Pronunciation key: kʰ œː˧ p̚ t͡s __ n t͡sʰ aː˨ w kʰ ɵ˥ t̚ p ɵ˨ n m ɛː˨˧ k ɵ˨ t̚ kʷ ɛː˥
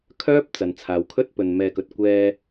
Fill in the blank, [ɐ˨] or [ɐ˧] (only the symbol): ɐ˨